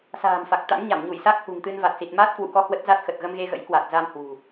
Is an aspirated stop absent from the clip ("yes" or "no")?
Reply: yes